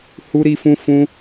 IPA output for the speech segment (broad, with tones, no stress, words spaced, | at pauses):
hu˦ɾi˦fũ˦ fũ˦